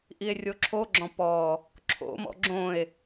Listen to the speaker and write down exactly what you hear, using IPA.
ʔ i e̯ rʲ o ǁʰ o ɡ͡ǁ ɔ̃ p ɔ | ǁʰ o̰ m ɔ̰ ɡ͡ǁ õ e̯

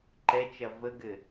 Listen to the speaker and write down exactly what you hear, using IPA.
ǃ ɛ t͡ʃ ɐ v ə ɡ ɘ

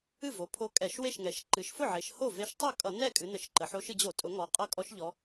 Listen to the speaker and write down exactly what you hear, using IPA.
ɨ˥˩ v o˩˧ pʰ o˧˥ kʼ ɛ˧˩˧ ʃ w e˥˩ ʃ ŋ ɛ˩˧ ʃ ǃ ɨ˩˧ ʃ f ʊ˥˩ ʕ e˩˧ ʃ h o˥˩ v e˧˥ ʃ tˤ ʌ˥˩ kʼ ʌ˧˩˧ n ɛ˥˩ kʼ ɨ˩˧ n ə˧˩˧ ʃ ǃ ə˩˧ ħ o˧˥ ʃ ɨ˩˧ d͡ʑ o˧˩˧ tʼ ʊ˩˧ ŋ ɔ˩˧ qʼ ʌ˧˥ kʼ ɔ˧˥ ʃ ʎ ɔ˧˥

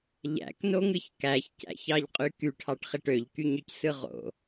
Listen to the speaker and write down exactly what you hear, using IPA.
ʎ æ̰ k n o ŋ ɯ ç k æ ç c æ̰ ç ɑ ʎ qʼ y k y ʈʰ ɑ ʈ χ e ʈ ø ʎ k y ɲ ø c s ɯ ʁ o̰

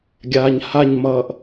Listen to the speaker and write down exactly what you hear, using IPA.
ɡʲ aː ɲ h a ɲ m ʌː ʔ

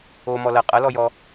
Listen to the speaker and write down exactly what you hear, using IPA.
o m ɔ l ɐ qʼ ɐ l ɔ j ɔ

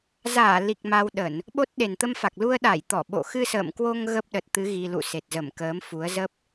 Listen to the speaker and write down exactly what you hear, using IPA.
z aː˧˩ l i˨˩ k̚ m a˧ w ɗ ə˧˩˨ n | ɓ o˦˥ t̚ ɗ e˨˩ n t̪ ə˧ m f a˨˩ k̚ l u˧ ə̯ ɗ a˧˩ j t̪ ɔ˧˩ ɓ o̰˧˨ x ɨ˧ s ə̰ː˧˨ m k w o˧ ŋ ɣ ə˦˥ p̚ ɗ ə˨˩ t̚ t̪ ɨ˨˦ ɣ i˧ l ṵ˧˨ s e˨˩ t̚ z ə˧˩ m k əː˨˦ m f u˨˦ ə̯ z ə˦˥ p̚

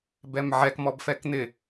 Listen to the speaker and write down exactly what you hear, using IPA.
b ɛ m ʕ ɛ k m ɔ b f ɛ k n̪ ɪ

